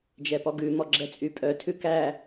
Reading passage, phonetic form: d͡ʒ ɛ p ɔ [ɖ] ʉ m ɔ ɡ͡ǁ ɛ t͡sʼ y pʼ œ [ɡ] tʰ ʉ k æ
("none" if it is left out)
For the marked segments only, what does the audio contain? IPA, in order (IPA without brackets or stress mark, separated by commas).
ɡ, none